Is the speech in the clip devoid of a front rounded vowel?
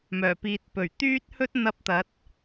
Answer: no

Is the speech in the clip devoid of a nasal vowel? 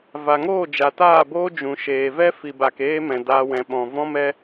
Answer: no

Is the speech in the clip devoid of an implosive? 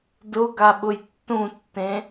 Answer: no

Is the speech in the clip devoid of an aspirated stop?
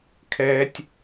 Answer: no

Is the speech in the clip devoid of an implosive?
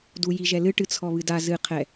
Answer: yes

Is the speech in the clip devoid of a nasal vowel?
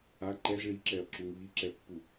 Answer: yes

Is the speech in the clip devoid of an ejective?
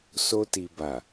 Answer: yes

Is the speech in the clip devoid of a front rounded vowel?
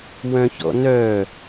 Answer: no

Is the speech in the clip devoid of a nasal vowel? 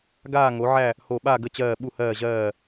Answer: yes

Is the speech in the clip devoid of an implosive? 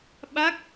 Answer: no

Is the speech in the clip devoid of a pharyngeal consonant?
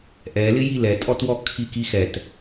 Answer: yes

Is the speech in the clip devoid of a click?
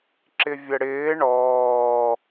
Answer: no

